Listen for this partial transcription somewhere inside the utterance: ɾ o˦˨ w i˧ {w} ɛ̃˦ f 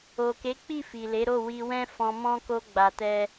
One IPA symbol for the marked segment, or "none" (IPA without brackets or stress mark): w